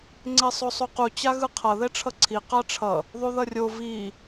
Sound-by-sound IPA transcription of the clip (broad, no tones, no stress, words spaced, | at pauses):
ŋ͡ǀesˤosˤuqu t͡ɕaɣɯqʰʌ ðɛʈ͡ʂʰʌǀʰi qaʈ͡ʂʰʌ | ðˤuðʌrʲo vi